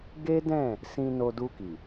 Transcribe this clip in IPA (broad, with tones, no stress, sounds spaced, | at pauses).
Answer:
ɡ e˦ d ɛ̃˦˨ | s ĩ˧ n o˧ d u˧ k i˨